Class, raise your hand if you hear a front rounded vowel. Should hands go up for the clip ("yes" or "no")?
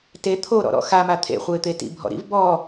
no